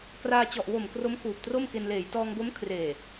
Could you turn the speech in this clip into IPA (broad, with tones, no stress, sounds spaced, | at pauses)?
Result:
k r aː˧ t͡ɕ ɔ˨˩ ʔ w o˨˩ m k r o˦˥ m kʰ uː˨˩ p̚ t r o˥˩ m k e˧ n l eː˩˦ j t ɔː˧ ŋ b o˦˥ m kʰ r eː˨˩